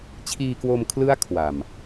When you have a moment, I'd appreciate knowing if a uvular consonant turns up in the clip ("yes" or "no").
no